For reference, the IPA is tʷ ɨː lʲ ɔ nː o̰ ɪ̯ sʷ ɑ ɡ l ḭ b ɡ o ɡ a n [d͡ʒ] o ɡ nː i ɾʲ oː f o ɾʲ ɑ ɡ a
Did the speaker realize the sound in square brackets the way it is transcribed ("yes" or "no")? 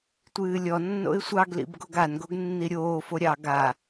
no